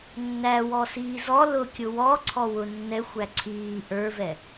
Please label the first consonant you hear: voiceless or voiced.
voiced